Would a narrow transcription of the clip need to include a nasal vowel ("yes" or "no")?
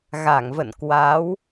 no